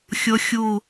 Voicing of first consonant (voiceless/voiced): voiceless